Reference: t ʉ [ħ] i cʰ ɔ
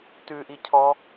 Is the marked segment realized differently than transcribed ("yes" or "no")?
yes